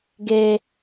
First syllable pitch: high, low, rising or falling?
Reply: high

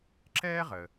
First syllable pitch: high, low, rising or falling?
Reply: high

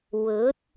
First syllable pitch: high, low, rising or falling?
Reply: rising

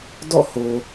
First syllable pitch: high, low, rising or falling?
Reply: falling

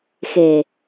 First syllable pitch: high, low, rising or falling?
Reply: low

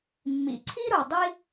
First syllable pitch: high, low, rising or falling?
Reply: low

